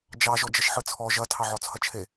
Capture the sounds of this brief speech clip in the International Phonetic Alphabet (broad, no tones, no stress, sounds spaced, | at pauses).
d͡ʒ ɑ ʒ ɔ d͡ʒ ɐ ʃ ħ ɯ t͡sʰ ɔ ʒ ɐ tʰ ɑ ʕ ɔ t͡sʰ ɐ t͡ʃʰ e